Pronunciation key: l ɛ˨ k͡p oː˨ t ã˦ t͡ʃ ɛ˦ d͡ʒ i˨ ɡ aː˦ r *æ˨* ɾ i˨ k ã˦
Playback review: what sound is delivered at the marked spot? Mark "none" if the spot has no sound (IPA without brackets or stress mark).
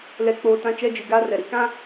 ɛ˨